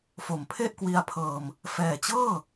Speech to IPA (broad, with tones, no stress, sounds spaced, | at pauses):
f o˨˩ m pʰ e˥˩ ʔ k w i˧ a̯ pʰ ɤː˧ m | f ɛː˨˩ t͡ɕ ɤː˥˩